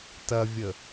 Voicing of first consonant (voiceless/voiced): voiceless